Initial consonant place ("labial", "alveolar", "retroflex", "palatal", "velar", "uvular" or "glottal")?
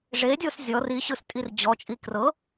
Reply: retroflex